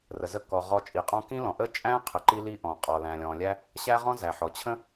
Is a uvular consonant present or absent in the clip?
present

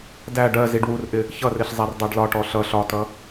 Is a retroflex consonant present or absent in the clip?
present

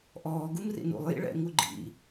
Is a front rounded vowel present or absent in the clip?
absent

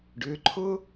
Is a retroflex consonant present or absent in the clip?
present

